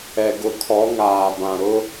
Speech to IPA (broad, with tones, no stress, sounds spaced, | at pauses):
ɛ˨ ɡ ʊ˨ kʰ ɔ˨˦ ŋ aː˨ b ã˨ ɾ ʊ˦